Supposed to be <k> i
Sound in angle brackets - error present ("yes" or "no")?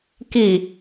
no